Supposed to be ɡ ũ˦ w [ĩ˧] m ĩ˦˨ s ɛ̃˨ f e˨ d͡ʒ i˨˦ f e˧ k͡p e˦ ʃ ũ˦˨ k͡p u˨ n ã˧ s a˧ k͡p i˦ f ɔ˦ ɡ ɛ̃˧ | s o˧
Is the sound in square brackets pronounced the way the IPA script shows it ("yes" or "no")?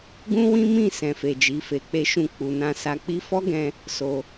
no